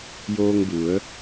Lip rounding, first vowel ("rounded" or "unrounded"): rounded